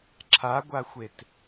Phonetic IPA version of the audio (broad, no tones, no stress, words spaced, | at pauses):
ǁʰaɡʷaxʷet